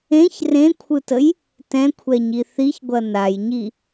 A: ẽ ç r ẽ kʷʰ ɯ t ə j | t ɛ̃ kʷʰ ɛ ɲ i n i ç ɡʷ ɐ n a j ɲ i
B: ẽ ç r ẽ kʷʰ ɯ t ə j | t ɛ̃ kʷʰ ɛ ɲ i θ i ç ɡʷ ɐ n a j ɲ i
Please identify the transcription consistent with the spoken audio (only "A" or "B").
B